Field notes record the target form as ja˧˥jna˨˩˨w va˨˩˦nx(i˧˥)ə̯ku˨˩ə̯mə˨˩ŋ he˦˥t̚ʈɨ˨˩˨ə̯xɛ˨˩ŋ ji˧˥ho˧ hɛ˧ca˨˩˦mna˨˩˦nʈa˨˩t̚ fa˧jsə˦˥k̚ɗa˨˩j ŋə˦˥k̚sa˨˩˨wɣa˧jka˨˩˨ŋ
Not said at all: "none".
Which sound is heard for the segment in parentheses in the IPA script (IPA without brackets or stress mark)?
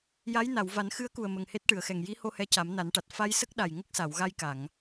ɨ˧˥